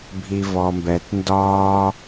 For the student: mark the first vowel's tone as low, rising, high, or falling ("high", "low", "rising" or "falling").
low